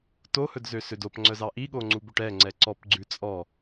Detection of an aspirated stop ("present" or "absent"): absent